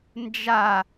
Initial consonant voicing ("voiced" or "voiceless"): voiced